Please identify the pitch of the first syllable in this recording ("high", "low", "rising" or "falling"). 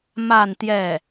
falling